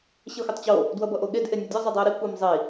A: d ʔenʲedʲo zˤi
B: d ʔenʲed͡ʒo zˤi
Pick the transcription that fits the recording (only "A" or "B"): A